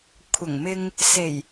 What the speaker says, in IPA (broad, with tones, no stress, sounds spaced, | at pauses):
kʷʰ ɐ˨˩ ŋ m ɪ˧ ŋ | s e˨˩ j